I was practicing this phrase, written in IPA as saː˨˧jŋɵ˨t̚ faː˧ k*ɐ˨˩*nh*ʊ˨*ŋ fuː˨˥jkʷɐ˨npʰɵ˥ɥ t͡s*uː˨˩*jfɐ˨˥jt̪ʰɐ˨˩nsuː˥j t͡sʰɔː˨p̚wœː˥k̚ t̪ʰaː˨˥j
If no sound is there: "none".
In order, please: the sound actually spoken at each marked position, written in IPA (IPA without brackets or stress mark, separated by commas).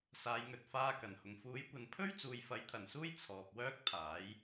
ɐ˨˩, ʊ˨, uː˨